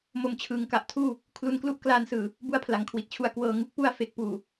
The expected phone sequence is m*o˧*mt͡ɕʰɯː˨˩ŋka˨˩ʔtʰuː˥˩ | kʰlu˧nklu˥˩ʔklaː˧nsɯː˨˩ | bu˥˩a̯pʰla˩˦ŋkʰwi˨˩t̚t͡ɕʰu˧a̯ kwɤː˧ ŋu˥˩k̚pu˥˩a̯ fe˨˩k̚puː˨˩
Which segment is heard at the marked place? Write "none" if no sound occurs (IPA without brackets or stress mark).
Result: o˧